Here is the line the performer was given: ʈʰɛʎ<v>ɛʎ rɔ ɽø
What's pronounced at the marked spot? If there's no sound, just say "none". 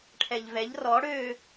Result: v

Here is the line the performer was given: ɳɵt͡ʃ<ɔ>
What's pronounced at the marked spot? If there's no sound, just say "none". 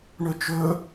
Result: ɵ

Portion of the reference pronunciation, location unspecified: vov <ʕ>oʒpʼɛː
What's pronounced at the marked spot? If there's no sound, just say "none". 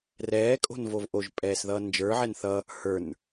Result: ʔ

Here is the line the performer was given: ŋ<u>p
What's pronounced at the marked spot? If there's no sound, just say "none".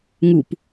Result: u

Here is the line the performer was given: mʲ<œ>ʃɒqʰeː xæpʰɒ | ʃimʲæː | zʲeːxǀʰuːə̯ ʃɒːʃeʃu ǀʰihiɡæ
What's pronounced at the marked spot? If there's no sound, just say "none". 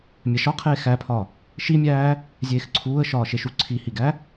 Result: æ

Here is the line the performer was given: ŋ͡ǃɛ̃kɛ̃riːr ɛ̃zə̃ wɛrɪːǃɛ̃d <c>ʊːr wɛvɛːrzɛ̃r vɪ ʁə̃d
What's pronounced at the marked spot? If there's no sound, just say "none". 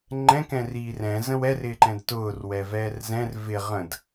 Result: t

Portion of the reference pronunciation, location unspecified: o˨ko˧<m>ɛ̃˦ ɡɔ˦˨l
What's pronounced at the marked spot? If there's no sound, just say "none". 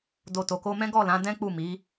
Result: m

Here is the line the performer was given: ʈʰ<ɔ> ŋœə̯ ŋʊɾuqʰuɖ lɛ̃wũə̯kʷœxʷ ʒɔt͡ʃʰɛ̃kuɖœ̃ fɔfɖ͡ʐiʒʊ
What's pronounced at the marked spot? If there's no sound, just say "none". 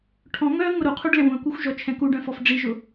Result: ɔ̃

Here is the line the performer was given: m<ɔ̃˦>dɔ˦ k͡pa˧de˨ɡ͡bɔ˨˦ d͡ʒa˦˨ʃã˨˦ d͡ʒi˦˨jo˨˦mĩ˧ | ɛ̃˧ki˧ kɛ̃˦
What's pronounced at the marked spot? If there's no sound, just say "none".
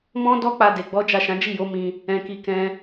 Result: ɔ̃˦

